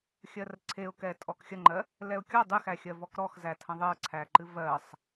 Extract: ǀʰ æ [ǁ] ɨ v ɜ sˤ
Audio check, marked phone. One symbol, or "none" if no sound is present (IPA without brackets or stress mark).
ǃ